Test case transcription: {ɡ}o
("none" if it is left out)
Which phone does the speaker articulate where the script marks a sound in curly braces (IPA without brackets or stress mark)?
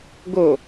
ɡ